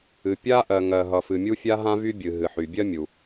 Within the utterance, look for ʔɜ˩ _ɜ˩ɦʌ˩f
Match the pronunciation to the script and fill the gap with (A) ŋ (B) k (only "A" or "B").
A